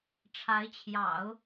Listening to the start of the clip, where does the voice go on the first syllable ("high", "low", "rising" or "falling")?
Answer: rising